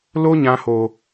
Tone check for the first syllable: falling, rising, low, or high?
high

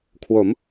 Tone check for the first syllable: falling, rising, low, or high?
rising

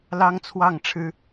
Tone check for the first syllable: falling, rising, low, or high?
high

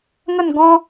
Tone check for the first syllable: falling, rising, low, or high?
falling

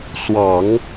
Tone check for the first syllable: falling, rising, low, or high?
low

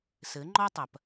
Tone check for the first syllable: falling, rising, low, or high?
rising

